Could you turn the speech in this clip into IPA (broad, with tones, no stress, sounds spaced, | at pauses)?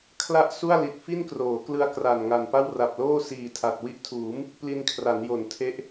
kʰ l a˥˩ ʔ s u˥˩ a̯ l i˨˩ t̚ f i˥˩ n k r oː˩˦ k l ɯ˧ a̯ k r a˨˩ n ŋ a˨˩ n p a˥˩ w r a˨˩ p̚ l oː˥˩ s iː˨˩ tʰ a˨˩ t̚ w i˦˥ ʔ tʰ uː˩˦ m | p l i˧ n kʰ r a˩˦ n j o˩˦ n tʰ e˦˥ ʔ